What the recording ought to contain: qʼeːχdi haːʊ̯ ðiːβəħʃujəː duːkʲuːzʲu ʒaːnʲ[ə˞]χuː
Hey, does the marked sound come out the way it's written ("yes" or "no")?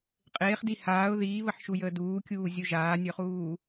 yes